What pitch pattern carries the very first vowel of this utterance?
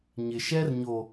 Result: low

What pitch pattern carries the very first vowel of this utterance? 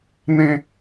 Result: high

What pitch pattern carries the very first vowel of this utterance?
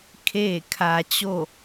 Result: falling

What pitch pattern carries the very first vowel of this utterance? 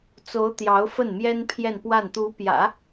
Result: rising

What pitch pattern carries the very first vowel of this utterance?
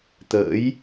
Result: rising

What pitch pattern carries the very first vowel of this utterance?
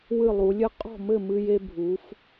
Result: falling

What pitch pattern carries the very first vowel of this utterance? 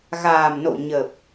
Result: low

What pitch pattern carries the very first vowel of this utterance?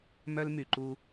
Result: high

